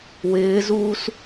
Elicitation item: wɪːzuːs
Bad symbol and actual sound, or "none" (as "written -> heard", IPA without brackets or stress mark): none